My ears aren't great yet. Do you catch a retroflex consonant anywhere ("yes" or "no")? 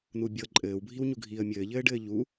yes